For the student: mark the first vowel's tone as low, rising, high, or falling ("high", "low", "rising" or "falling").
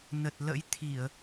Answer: low